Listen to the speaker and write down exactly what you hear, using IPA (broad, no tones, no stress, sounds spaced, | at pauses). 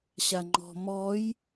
ɕ a ŋ͡ǃ ɔ̤ m ɔ j